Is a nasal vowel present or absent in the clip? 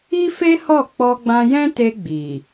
present